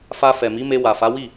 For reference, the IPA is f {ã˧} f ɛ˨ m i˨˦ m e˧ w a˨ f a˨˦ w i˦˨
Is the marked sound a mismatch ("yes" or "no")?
yes